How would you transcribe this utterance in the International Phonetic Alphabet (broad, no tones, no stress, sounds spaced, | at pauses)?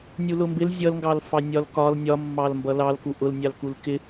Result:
nʲ u l ʊ m b ɪ l zʲ ʌ l ŋ ɡ ɑ l f ɑ nʲ ɒ l k ɒ l nʲ ɒ mː ɑ l m b ʌ l ɑ l k u ʔ ʊ l nʲ ɑ l k u l k ɪ